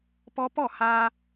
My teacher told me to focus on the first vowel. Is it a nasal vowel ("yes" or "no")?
no